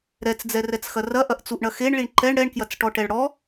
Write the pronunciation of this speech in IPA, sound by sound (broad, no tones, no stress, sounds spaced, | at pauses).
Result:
ɾ ɛ t͡s d͡z ɛ r ɛ t͡s x ɐ r ɐ ʔ ɐ ʔ t͡s u ʔ ɳ ɐ x e ɳ ɭ i ɳ ǃ ɛ ɳ ɽ ɛ ɳ k j ɐ t͡s ʈ ɔ ʈ ɛ ɭ ɽ ɔ